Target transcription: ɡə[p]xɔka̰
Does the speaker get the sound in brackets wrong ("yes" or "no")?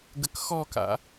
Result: yes